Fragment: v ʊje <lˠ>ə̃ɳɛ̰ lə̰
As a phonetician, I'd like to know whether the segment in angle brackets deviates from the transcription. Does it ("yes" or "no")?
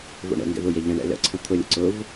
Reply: yes